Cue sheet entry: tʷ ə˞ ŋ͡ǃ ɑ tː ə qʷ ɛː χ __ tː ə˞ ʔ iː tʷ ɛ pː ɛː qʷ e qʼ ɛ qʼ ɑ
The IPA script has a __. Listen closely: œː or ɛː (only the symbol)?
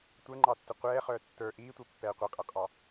œː